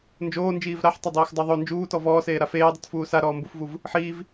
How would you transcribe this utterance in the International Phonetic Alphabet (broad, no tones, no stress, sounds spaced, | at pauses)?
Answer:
n d͡ʒ oː n d͡ʒ iː v ɾ a ħ tˤ e dˤ iː x dˤ o ðˤ o n d͡ʒ uː t ɔ v ɔː s eː ɾ a f eː dˤ u t f uː s a ɾ ɔː m b u f v u v | ħ iː v